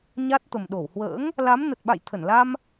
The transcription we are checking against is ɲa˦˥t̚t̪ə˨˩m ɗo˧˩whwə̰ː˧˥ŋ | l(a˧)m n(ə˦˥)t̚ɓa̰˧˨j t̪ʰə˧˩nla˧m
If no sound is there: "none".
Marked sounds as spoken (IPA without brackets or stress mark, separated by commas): a˨˦, ə˨˩